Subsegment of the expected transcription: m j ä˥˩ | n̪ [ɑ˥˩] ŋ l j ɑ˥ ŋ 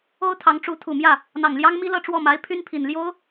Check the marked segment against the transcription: incorrect: ɑ˨˩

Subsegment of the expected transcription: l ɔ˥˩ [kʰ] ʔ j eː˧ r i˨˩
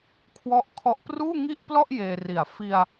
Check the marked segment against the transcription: incorrect: none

